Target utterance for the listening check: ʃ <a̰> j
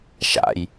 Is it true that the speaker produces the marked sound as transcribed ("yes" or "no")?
yes